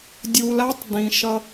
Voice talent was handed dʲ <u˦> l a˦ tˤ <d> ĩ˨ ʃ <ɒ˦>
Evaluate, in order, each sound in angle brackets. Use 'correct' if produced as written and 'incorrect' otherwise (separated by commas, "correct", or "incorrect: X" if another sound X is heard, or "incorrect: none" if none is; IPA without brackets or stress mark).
incorrect: u˨, correct, incorrect: ʌ˦